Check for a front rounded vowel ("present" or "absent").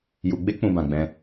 absent